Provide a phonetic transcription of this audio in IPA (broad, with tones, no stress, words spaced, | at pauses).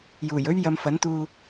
juː˨˩jɵ˥ɥ jɐ˧mfɐ˨˥nt̪uː˧